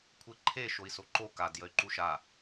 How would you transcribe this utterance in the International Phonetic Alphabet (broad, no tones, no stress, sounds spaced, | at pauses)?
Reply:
kʷʰ e ǃʰ e ʃ o i̯ s o ǃ o k a d j ə y̯ ǃ u ʃ a